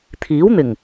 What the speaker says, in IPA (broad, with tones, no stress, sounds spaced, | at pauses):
t̪ʰ iː˨˥ w n̪ ɪ˨˩ ŋ